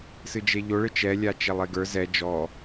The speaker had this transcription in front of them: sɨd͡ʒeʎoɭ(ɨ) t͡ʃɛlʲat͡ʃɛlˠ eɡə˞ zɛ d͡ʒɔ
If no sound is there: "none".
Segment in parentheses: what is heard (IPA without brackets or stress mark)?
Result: ɨ